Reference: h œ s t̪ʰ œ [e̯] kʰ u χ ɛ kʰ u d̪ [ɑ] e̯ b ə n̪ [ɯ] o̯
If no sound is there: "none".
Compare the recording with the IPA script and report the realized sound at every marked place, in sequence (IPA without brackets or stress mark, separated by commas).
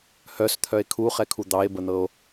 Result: e̯, ɑ, ɤ